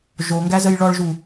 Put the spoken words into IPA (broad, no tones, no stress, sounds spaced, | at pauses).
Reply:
ʒ o ŋ ɡ æ z ə j ɭ ɔ ɭ ʒ u